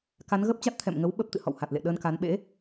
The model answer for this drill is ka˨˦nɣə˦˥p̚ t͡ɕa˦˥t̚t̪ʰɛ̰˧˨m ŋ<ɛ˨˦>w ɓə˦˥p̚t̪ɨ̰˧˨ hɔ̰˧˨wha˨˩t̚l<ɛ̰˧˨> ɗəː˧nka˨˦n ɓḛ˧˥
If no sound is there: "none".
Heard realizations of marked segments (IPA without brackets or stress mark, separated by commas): ə˨˦, ḛ˧˨